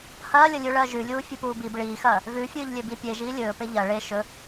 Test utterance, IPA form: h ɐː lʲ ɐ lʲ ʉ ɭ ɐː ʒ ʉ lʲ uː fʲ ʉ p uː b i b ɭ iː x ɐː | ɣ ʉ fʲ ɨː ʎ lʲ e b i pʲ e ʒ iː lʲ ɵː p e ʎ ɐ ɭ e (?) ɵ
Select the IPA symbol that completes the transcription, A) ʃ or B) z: A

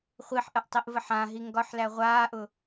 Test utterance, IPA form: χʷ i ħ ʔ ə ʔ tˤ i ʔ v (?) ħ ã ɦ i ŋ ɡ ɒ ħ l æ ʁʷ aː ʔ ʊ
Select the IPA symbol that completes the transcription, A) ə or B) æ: A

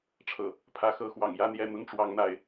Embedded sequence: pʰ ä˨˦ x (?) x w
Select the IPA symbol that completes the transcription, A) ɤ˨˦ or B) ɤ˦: A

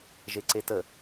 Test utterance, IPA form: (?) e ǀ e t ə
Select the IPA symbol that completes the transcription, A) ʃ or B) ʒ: B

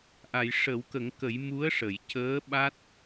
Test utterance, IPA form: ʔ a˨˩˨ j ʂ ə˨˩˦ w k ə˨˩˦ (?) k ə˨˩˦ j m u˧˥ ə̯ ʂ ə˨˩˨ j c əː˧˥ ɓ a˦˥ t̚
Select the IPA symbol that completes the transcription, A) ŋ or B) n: A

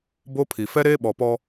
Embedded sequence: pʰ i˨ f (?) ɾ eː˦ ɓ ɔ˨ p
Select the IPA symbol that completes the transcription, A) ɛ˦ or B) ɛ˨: A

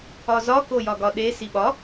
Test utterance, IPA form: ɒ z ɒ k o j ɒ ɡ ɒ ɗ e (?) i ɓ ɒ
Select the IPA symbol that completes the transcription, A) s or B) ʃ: A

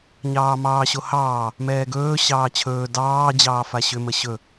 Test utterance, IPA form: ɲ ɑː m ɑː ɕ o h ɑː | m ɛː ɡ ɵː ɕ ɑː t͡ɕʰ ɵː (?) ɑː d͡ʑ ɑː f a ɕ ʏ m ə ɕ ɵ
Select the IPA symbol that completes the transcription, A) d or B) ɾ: A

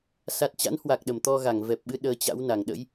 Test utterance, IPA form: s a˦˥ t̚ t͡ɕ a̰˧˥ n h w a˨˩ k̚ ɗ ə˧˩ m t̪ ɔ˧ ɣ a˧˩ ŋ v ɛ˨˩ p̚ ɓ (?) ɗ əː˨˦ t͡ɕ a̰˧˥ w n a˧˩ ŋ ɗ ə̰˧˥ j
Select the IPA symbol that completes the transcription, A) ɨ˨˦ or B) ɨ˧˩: A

